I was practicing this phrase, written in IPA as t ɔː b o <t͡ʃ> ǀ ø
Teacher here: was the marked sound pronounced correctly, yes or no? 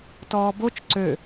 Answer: yes